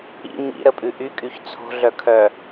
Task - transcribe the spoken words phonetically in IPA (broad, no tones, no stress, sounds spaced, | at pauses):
ḭ ɲ ḭ ɾ ə pʼ ʉ ʔ y kʼ y ç t͡sʰ o̤ ɮ œ kʰ œ